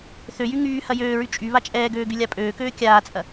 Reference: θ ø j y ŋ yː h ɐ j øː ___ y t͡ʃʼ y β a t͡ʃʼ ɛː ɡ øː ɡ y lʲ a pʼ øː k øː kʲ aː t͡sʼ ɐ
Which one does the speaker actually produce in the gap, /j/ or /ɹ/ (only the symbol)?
ɹ